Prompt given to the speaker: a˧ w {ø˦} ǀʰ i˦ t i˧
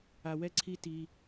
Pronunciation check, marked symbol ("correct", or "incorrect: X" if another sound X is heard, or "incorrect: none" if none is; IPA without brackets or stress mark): incorrect: ɛ˦